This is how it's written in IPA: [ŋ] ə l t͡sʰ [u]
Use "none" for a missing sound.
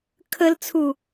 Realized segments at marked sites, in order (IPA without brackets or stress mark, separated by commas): kʰ, u